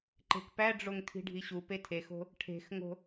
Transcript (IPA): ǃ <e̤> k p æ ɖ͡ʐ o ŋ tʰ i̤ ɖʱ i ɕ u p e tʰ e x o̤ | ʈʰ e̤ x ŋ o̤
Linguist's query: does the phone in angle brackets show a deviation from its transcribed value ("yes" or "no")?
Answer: no